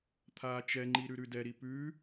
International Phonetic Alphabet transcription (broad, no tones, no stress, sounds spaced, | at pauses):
t̪ʰ aː t͡ʃ ɛ ŋ͡ǃ i ɾ ʉ ɾ ʉ d ɛ ɾ i p ʉ